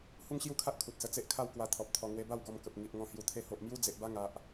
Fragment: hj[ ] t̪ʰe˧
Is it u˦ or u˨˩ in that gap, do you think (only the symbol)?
u˨˩